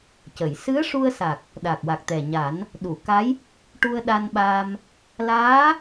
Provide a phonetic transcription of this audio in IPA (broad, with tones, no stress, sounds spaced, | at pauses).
c ə˨˩˨ j s ɨ˧˥ ə̯ ʂ u˧ ə̯ s a˨˩ k̚ | ɗ a˨˩ k̚ w a˨˩ k̚ t̪ ɛ˨˩ ɲ a˨˩˦ n | ɗ u˨˩˨ k a˧˥ j | ʈ u˧ ə̯ ɗ a˧ n ɓ aː˧ m | l aː˧˥